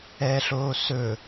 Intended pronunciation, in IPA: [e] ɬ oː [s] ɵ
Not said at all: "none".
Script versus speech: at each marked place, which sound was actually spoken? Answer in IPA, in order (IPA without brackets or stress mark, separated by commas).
ɛ, s